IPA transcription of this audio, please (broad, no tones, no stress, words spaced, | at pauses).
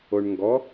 oɳŋɡɔ